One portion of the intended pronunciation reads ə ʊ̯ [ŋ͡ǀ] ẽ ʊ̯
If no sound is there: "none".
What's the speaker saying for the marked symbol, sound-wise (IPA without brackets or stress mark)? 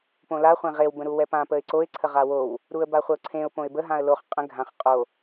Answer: ǀʰ